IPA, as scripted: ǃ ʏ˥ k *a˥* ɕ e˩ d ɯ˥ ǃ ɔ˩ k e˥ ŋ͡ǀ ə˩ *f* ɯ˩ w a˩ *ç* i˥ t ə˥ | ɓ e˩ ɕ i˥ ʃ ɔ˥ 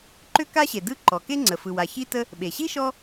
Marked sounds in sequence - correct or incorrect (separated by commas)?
correct, correct, correct